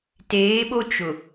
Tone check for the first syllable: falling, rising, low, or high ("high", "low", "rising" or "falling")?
rising